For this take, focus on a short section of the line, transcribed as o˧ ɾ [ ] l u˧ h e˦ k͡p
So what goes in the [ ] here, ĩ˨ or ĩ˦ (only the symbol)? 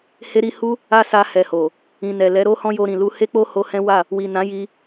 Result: ĩ˨